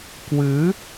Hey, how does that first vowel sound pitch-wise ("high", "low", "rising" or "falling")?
rising